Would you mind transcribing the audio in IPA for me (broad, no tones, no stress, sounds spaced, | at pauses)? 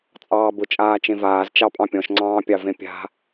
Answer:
t͡sʼ ɑː b ʊ t͡ʃʼ aː t͡ʃ ẽ v aː z t͡ʃ ɑ pʼ ɑ̃ pʲ ɔ̃ ʃ ŋ͡ǀ ɑ̃ː pʲ ɑ v ẽ pʲ a̤